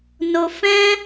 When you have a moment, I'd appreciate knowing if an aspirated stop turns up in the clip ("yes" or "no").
no